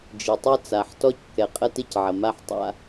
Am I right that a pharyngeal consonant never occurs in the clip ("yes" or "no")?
no